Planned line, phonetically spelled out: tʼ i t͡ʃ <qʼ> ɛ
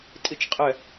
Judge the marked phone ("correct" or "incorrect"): correct